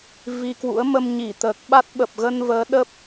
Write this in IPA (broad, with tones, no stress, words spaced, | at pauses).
vi˧kwṵ˧˥ə̯ mə˧mɲi˧˩t̪əː˨˩k̚ɓa˦˥t̚ ɓə˨˩p̚ɣə˧n vəː˨˦ɗə˦˥p̚